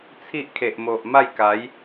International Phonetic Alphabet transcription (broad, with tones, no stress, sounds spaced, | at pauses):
t͡sʰ i˦ ʔ kʰ e˨ ʔ m o˨ ʔ m a˥˧ j k a˨˦ j